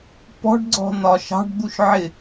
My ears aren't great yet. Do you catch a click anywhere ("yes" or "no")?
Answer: yes